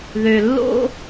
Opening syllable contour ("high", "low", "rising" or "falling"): low